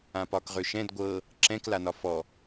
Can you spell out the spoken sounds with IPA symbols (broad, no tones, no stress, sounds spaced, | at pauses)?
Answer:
ã p ɒː k ʁ ø ʃ ɛ̃ d ɡʷ ɤ | ǁ ɛ̃ k l a n ɒ f ɔ